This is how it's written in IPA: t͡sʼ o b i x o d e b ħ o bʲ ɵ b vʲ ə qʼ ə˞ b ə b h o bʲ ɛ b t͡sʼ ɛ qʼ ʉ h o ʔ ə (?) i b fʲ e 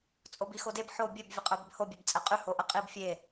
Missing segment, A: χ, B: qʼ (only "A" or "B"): B